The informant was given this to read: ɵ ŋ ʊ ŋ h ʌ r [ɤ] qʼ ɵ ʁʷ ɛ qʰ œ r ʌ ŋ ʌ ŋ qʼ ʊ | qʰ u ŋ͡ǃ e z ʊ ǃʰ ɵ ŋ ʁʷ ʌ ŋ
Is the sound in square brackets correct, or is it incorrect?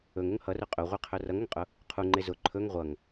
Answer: incorrect